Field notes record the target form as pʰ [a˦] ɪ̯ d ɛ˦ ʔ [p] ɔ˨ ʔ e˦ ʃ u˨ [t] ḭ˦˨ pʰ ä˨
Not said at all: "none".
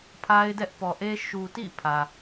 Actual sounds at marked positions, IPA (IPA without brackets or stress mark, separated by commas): a˦, p, t